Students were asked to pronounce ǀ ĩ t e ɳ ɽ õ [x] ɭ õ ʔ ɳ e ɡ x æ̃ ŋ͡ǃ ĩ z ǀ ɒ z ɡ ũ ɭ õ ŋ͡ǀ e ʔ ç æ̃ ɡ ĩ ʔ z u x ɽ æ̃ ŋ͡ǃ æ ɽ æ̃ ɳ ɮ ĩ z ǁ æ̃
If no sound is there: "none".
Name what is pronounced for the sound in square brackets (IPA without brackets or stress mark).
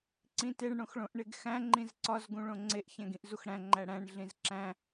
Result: x